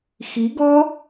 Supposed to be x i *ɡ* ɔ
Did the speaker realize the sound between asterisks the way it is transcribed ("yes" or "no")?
yes